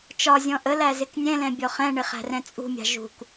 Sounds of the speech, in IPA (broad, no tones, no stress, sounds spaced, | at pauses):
t͡ʃ ɒ zʲ ɔ̃ ʔ ə l æ z ɪ k nʲ ɛ̃ l ɛ̃ bʲ ɔ χ ɛ̃ ɳ ɪ χ æ̤ r ɛ̃ t͡sʼ ṳ mʲ ɑ̤ ʒ ṳ k